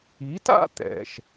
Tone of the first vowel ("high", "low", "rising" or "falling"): rising